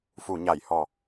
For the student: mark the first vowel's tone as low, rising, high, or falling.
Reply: low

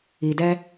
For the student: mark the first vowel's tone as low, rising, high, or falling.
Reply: low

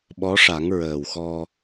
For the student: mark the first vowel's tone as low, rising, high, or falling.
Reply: rising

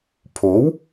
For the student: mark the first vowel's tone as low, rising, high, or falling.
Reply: rising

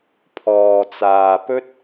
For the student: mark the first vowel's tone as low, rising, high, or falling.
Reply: low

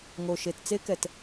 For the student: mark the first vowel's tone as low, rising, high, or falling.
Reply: low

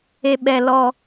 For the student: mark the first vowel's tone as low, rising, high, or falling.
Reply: low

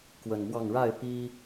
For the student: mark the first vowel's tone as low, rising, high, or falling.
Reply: low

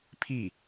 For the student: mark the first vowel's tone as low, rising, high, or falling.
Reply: falling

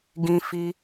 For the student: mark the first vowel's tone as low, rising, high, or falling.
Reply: high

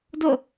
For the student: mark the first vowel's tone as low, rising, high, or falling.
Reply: falling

